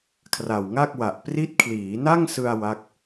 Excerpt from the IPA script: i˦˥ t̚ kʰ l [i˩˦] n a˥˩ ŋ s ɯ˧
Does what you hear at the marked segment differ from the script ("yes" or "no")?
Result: yes